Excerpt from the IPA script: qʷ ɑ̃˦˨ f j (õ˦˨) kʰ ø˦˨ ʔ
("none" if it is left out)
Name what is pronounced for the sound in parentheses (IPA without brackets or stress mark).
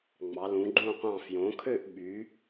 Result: õ˩˧